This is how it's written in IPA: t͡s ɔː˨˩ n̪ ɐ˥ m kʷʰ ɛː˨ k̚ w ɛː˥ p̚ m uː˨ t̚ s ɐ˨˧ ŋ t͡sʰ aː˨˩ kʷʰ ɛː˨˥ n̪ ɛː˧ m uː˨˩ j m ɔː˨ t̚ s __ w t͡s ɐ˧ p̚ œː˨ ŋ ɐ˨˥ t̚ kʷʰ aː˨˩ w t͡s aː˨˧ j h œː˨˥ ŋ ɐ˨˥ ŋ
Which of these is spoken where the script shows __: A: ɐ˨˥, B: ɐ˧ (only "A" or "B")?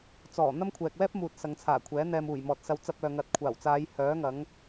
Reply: B